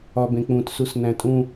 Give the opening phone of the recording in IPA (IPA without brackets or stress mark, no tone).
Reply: ɒ